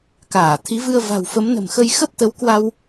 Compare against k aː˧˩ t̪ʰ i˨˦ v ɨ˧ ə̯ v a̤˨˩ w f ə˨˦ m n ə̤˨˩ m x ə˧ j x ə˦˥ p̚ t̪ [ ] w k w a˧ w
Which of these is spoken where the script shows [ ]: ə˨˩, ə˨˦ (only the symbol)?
ə˨˦